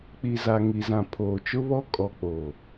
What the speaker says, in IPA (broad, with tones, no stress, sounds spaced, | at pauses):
k͡p i˨ z a˨ ŋ i˨ z ã˨ pʰ oː˨ t͡ʃ ʊ˦ β ɔ˦ kʼ ɔ˨ k͡p oː˨